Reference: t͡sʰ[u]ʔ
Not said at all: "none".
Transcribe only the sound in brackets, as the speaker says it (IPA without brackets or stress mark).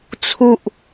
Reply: u